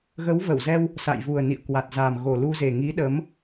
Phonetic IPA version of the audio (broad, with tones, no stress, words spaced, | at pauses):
ɣə˨˦w və˧˩wzɛ˧w | sa̰˧˨jvu˨˩ə̯ nḭ˧˨ə̯kwa˨˩t̚za˨˩m ɣo˨˩lu˧ze˨˩ ŋi˨˦ ɗə˨˦m